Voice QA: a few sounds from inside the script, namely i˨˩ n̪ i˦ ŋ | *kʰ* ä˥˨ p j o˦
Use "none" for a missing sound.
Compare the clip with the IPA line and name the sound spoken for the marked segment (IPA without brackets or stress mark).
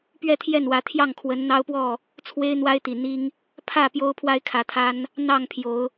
pʰ